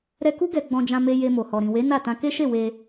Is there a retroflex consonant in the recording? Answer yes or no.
no